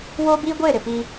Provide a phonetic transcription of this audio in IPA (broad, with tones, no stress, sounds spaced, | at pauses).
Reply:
w oː˦ b iː˦ ɡʷ eː˦˨ ɾ ɪ˨ p i˦